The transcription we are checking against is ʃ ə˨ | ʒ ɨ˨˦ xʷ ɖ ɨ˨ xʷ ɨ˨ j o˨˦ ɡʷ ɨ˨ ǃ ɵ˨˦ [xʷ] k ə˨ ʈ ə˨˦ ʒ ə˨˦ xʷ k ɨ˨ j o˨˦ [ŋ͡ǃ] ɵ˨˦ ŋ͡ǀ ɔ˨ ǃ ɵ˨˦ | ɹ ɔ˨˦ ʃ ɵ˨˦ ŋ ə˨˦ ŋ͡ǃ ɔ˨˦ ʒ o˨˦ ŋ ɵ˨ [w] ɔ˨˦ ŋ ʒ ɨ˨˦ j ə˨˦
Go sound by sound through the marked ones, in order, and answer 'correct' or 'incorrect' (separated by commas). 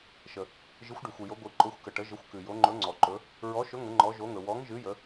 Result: correct, correct, correct